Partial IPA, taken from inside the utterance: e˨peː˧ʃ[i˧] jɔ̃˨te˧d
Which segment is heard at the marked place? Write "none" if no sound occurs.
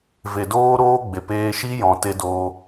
i˦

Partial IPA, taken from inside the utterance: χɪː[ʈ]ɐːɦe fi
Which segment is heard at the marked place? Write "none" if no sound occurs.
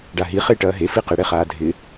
ʈ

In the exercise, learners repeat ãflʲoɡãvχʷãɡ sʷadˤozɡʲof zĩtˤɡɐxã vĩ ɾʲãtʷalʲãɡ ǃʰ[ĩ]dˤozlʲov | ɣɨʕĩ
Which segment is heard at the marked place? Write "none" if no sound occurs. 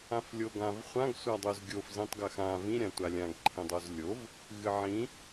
ĩ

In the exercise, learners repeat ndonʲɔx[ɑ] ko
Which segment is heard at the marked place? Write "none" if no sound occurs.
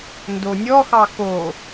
ɑ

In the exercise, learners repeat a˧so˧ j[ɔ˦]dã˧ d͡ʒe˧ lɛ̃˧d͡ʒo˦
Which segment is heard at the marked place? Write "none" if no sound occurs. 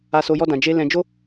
ɔ˦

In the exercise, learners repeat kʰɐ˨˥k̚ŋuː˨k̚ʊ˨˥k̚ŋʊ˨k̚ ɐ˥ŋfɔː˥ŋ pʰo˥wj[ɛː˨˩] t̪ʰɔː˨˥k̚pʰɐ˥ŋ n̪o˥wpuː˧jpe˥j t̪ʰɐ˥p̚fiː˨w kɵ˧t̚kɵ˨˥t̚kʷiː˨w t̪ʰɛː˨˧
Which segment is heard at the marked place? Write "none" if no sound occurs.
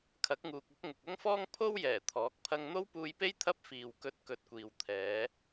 ɛː˨˩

